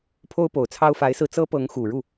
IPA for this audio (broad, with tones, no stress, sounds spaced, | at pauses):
pʰ o˥ ʊ̯ p o˨˩ ʊ̯ t͡sʰ ɑ˥ ʊ̯ f a˧˥ ɪ̯ s ɹ̩˧ t͡s ɤ˥ p ɤ˧˥ ŋ x u˨˩ ɻ u˥˩